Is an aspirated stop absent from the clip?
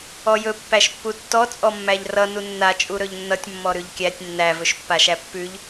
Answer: yes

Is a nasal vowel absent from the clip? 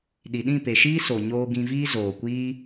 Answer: no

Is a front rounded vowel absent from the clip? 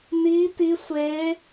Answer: yes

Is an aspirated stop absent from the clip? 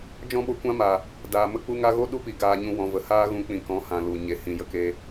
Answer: yes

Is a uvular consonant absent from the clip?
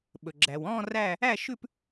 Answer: yes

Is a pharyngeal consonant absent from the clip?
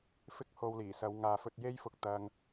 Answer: yes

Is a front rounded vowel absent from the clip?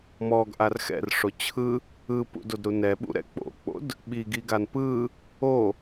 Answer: yes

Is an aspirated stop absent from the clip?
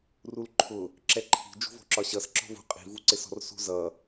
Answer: no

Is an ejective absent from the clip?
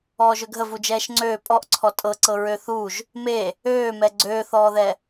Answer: no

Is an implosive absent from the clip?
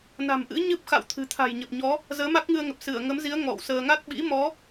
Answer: no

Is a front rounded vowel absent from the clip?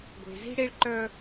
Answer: no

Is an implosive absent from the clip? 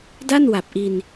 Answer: yes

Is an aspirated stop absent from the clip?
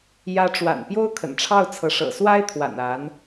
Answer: no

